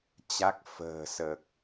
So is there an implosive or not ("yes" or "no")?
no